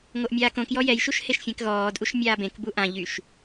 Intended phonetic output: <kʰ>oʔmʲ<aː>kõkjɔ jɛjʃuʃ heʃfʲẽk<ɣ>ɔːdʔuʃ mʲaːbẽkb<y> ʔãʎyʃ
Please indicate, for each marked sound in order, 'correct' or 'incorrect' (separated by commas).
incorrect, correct, correct, incorrect